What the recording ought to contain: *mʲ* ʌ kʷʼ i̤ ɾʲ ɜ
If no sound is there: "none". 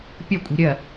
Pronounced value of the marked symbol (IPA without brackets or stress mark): pʲ